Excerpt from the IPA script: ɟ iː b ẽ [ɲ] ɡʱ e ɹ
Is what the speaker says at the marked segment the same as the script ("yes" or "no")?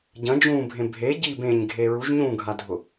yes